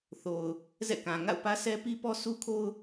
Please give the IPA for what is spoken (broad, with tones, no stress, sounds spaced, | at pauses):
θ o˨ ʊ̯ | z ɛ̰˦˨ k ã˨ ŋ a̰˦˨ ʊ̯ p ä˦ s ɛ˦ p i˦ p ɔ˦ s u˦ kʰ o˦ ʊ̯